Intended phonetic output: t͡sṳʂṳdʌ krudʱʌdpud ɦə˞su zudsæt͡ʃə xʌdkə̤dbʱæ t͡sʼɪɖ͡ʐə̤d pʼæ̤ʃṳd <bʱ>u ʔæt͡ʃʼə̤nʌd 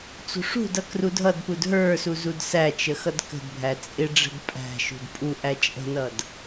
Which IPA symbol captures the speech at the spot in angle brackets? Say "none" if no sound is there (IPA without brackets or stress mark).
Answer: pʼ